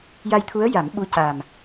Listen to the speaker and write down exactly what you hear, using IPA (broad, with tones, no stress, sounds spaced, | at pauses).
j a˧ j t̪ʰ u˧˥ ə̯ j a˨˩˦ m ɓ u˧˥ c a˨˩ m